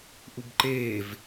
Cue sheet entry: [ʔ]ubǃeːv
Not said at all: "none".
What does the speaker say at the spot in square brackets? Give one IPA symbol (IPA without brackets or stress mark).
ʔ